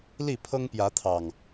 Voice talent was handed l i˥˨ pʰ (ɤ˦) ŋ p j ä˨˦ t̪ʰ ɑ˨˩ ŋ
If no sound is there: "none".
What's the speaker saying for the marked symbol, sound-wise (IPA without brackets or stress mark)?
ɤ˦